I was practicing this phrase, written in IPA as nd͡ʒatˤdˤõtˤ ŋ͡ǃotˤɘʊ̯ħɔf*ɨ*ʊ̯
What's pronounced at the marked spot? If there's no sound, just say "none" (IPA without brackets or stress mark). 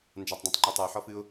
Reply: ɨ